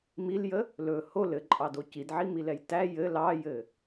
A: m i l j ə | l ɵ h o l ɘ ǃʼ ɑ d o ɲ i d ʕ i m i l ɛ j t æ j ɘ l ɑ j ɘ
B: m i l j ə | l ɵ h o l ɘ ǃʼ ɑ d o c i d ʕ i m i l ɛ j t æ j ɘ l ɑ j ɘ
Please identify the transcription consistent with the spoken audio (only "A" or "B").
B